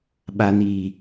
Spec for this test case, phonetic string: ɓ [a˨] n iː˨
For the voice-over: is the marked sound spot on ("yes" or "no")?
yes